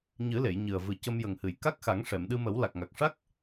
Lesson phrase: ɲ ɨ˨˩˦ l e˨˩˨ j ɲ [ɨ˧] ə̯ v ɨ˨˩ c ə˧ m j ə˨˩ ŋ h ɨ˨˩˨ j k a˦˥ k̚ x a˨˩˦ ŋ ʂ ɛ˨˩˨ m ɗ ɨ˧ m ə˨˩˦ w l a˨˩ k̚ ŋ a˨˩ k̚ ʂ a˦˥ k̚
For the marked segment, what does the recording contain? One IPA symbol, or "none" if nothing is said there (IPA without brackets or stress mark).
ɨ˨˩